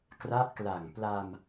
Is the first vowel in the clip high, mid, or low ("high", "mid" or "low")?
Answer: low